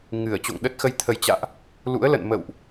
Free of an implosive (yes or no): no